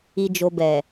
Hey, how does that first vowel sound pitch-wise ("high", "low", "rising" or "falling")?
low